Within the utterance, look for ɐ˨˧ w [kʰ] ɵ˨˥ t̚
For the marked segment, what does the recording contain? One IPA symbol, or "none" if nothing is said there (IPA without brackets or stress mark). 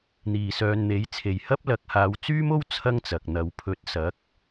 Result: pʰ